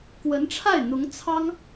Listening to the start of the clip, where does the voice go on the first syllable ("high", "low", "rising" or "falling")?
rising